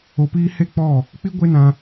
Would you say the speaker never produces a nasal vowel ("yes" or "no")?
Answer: no